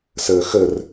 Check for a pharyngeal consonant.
absent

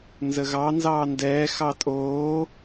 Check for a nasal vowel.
absent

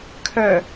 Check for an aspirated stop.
present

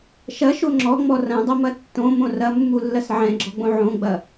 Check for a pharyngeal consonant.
present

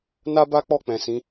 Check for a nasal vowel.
present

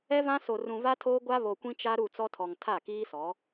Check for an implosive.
absent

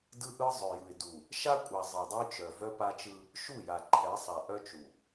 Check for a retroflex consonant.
absent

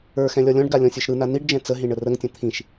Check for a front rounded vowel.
absent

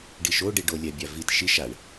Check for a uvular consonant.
absent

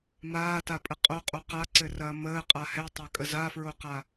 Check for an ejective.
present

